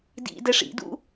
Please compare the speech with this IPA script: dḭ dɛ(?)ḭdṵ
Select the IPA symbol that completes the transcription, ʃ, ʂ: ʂ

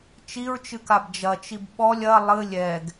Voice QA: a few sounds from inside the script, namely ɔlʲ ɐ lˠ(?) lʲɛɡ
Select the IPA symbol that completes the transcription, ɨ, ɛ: ɨ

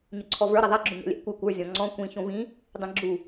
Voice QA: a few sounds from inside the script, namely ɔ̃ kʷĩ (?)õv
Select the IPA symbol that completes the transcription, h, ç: ç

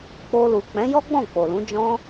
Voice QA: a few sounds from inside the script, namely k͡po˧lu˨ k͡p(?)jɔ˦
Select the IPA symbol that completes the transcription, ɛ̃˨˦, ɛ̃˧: ɛ̃˨˦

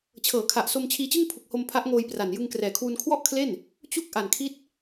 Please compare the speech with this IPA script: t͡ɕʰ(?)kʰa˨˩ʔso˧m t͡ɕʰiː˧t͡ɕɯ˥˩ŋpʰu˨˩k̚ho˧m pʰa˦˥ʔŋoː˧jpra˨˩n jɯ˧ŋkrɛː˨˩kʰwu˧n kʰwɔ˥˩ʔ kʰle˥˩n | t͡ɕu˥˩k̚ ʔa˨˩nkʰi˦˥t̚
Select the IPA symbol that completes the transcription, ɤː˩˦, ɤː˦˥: ɤː˩˦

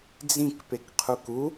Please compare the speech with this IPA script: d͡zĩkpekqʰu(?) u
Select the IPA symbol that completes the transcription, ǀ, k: k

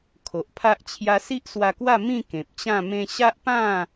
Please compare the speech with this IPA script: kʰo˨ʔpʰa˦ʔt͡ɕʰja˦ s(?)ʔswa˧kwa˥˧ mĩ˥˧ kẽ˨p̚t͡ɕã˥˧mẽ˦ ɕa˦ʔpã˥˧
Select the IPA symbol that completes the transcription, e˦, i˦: i˦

